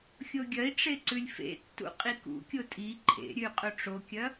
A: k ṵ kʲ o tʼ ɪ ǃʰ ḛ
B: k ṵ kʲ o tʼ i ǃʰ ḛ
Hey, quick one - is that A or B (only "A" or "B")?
B